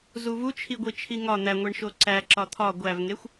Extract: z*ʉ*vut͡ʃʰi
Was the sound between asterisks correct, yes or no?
no